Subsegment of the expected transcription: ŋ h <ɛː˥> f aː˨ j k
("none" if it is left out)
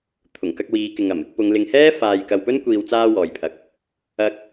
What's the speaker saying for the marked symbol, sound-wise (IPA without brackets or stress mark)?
ɛː˥